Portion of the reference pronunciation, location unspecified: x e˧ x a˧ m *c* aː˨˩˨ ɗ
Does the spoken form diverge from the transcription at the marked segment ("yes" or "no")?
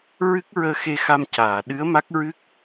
no